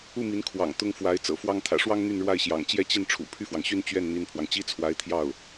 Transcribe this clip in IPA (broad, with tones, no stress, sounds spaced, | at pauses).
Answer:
u˥˩ m i˧˥ n kʰ w ɑ̰˨˩ ŋ t̪ ʊ˥ ŋ f w a˧˥ ɪ̯ t͡s ɤ̰˨˩ f w ɑ˥ ŋ t̪ʰ ä̰˨˩ ʂ w ɑ˥ ŋ n̪ y˥˧ n ɻ w a˥˩ ɪ̯ ɕ j ɑ̰˨˩ ŋ t͡ɕ j ɛ˥˧ t͡ɕ i˥˩ n ʈ͡ʂʰ ṵ˨˩ pʰ y˥˩ f w ɑ˩ ŋ ɕ y˥˧ n t͡ɕ ɥ ɛ˥˩ n n̪ i˥ n pʰ w ɑ˨ ŋ t͡ɕ i˥ t͡sʰ w a˧˥ ɪ̯ t̪ʰ j ɑ˥˩ ʊ̯